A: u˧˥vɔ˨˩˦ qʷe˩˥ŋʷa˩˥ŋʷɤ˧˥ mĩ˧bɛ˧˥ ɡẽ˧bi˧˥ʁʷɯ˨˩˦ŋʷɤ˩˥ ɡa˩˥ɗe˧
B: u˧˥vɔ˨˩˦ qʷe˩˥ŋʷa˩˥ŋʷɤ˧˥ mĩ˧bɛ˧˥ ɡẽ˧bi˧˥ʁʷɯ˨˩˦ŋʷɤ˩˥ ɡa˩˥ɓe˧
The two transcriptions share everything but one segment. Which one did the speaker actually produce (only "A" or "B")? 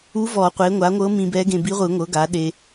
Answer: A